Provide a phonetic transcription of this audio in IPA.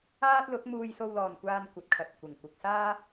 aː˥t̚lʊ˨˥k̚ muː˧jso˧wlɔː˨nkʷaː˧n kʷɐ˧t̚kʰɐ˧t̚ kʷɪ˨ŋkʷɪ˧k̚ saː˥

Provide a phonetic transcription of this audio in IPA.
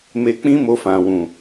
me˧k͡pĩ˦mo˧fã˨ wũ˨

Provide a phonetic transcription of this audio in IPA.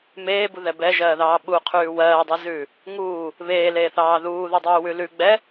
meːbuðɛ bɛʒɜːðɑː ɓuqʰʉː wɜːdˤezʉː | ŋuː | βeːleːθɑː ðuːðudˤʉːwʉ lʉ ɡ͡bɛ

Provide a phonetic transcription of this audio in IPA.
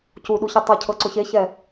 cuɗuçe tˤɤcʰɤǀʊ çeçɛ

